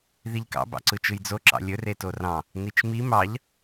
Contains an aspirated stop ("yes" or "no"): no